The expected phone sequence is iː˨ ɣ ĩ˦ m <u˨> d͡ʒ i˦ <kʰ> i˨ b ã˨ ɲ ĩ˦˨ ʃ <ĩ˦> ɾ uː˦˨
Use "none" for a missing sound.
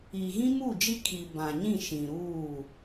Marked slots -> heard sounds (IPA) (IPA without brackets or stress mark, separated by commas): u˦˨, kʰ, ĩ˨